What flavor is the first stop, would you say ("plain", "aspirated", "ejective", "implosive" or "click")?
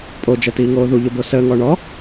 ejective